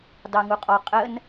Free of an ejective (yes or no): no